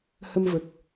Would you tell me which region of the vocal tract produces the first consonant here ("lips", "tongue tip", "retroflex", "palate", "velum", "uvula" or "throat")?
throat